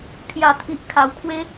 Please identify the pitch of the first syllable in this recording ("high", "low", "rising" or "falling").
low